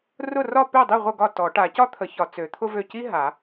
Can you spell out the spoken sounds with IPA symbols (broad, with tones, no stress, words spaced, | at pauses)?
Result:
rʊ˥˩rɒ˥˩ pø˥˩dˤi˥˩ ʁʷə˥˩ɡɒ˥˩ tɔ˨˩˦ ʈa˨˩˦cɒ˥t̪ʰə˨˩˦çɒ˨˩˦ t͡sø˨˩˦t̪ʰʊ˥vø˥˩ ci˥ ɦa˨˩˦